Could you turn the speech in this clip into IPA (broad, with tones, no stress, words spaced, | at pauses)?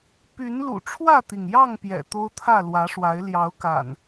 py˨˦nlṵ˨˩ ʈ͡ʂʰwä˥˨t̪i˩ŋjɑ˥˨ŋ pjɛ̰˨˩t̪o˦ʊ̯t̪ʰä˥˨ lwä˨˦ʂwa˨˦ɪ̯ ljɑ˨˦ʊ̯ka̰˨˩n